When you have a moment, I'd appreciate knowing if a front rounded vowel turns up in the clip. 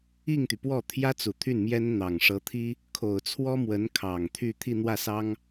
yes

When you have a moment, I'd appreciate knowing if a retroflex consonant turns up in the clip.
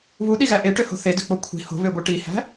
yes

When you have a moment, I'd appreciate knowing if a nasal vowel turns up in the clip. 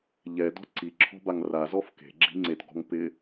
no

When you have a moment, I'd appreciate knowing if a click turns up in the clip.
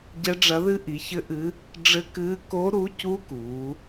no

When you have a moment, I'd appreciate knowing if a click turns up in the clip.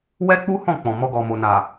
no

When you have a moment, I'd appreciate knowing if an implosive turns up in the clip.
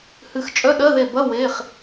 yes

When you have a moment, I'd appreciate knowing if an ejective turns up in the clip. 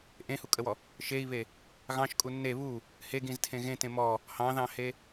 yes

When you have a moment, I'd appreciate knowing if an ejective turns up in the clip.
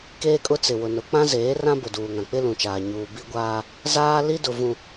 yes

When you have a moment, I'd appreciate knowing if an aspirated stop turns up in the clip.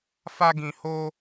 no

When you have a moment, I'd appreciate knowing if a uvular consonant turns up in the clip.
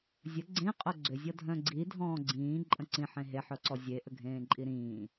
yes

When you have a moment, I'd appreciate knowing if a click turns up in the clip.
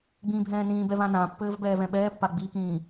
no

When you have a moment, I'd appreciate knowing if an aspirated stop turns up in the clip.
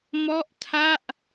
yes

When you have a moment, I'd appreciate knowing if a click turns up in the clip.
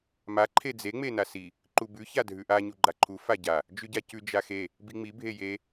yes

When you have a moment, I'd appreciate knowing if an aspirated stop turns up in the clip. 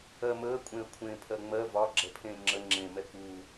yes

